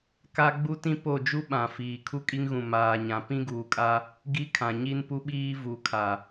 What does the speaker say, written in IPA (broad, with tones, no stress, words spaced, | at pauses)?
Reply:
ka˦ ɡ͡bu˦tĩ˦ po˦˨d͡ʒu˦ ɓã˨ fiː˨ kʰu˦kʼi˦ŋɣũ˨ maː˨ɲã˨ pĩ˦ɡuː˨kʼa˦ | ɡi˦kʰã˨ ɲi˦npu˦ɓiː˦ vu˨kʰa˨